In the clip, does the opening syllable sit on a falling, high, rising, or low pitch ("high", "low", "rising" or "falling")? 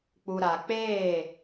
low